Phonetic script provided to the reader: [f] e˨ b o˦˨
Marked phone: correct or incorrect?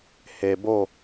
incorrect